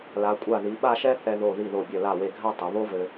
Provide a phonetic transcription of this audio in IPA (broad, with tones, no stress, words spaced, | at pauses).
la˩˧kʷʼa˧˩ ði˩˧ɓa˥˧ʃɛ˥ θɛ˧ðo˧˩ ði˧˩ðo˧˩bʲɘ˧˩ la˧˩we˧˩ɡʱa˥˧tˤɘ˩˧ βo˥vɘ˧